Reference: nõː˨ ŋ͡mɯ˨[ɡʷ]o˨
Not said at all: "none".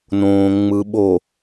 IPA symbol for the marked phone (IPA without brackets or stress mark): ɓ